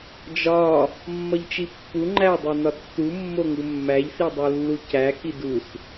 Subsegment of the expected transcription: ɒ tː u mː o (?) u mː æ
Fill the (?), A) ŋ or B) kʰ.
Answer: A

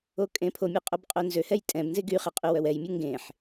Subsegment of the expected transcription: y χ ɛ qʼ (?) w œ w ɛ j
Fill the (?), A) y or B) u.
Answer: A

